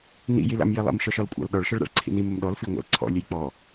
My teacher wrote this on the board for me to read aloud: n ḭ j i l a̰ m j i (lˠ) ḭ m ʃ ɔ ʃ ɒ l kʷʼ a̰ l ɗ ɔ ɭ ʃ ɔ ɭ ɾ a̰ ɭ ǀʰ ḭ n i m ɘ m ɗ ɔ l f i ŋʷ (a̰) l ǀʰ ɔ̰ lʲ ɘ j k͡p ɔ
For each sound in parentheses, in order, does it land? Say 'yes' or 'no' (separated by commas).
yes, yes